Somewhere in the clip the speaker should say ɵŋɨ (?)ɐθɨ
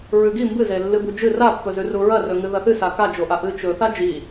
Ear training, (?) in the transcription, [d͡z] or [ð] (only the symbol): ð